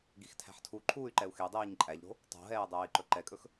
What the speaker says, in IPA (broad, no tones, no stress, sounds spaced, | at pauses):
ɡ i x tʰ æ̤ ħ tʰ u ǃʰ uː y̯ ǃ ɛ u̯ x e dˤ iː ɲ ǃʼ æ ʎ ɾ o̤ | tˤ o̤ ɦ ɛː dˤ ɛː i̯ ǃ ɵ ǃ ɛ kʼ ɵ x